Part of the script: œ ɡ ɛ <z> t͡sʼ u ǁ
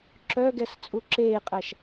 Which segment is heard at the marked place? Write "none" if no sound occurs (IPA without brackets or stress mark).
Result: s